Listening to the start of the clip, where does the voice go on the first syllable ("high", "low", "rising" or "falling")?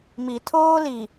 low